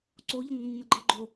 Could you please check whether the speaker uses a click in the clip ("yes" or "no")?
yes